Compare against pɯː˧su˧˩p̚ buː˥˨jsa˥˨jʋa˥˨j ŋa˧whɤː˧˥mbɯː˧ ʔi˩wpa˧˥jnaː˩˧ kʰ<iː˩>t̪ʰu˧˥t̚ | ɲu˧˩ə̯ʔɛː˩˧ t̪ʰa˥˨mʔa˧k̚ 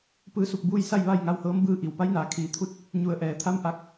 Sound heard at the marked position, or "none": iː˩˧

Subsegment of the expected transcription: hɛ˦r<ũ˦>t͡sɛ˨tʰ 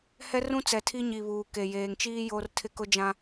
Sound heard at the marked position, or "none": ũ˦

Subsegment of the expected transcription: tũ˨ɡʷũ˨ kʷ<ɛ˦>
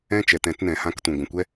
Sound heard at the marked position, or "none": ɛ˦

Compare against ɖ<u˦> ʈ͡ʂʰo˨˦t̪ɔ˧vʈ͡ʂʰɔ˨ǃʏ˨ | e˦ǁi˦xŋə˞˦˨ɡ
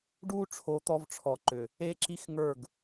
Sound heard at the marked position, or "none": u˦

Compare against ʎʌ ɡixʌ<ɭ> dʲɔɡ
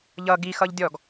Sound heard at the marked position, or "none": ʎ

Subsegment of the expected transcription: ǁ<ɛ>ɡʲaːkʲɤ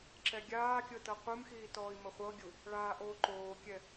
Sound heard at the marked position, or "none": ɛ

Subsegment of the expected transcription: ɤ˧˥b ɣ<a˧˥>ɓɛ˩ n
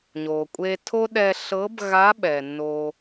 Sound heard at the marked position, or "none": a˧˥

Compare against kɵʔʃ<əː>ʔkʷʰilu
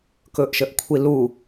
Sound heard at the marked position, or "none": ə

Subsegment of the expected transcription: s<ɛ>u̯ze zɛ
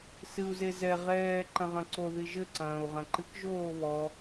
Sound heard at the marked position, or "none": ɨ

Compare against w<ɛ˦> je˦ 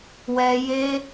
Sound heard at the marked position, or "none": ɛ˦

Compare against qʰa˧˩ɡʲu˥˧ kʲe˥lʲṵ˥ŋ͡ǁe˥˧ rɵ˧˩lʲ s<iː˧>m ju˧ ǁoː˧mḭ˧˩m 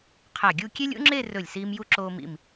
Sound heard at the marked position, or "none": iː˧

